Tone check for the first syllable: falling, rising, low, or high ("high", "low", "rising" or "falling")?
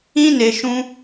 high